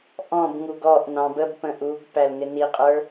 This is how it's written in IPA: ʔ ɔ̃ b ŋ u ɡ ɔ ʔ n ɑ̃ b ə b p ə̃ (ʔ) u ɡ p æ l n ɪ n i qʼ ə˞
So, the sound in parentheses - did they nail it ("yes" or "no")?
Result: yes